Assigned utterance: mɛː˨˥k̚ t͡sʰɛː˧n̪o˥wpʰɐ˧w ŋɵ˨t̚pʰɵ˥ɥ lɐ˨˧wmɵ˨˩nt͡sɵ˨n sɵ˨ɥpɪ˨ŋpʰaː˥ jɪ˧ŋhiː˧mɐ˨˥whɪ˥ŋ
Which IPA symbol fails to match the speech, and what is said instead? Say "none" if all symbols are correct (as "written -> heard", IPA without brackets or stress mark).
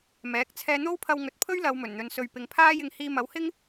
t͡s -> n̪